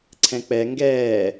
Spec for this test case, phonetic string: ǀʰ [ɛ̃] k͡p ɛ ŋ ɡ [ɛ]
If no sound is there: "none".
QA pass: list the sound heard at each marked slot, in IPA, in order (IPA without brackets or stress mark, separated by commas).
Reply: ɛ̃, ɛː